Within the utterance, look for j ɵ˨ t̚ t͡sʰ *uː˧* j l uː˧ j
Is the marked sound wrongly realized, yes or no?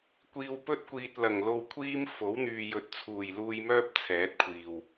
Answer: yes